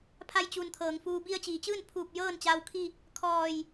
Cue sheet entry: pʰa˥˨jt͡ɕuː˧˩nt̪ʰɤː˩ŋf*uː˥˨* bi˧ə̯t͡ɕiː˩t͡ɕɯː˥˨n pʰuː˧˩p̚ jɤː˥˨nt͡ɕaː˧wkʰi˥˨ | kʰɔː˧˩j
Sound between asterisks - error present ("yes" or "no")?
yes